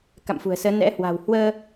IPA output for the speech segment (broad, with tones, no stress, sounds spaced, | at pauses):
k a̰˧˨ m f ṳ˨˩ ə̯ s əː˨˦ n ɛ̰˧˥ h w a̤˨˩ w h w əː˧